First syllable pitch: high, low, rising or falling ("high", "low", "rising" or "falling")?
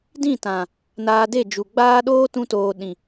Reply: falling